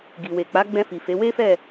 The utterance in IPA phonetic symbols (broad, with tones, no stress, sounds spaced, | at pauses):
ɡ i˨ w e˨ k͡p a˨˦ ɡ͡b ɛ̃˧ f i˨ f e˨˦ w e˦ f ɛ˦˨